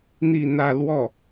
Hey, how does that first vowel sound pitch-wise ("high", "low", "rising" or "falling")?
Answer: falling